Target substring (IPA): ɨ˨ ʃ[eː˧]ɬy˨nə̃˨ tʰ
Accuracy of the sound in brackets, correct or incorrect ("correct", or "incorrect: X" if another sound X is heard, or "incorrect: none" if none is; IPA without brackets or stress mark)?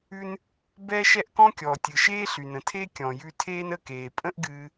incorrect: eː˦